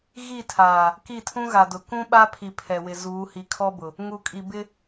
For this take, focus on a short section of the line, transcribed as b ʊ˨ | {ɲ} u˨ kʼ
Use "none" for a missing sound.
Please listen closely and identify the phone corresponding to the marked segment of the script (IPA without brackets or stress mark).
ŋ